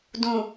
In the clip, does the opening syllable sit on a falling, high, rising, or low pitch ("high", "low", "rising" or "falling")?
low